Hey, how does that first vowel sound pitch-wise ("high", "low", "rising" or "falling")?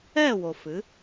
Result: falling